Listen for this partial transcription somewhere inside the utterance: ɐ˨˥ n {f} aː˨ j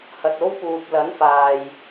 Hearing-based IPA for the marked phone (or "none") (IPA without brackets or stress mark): f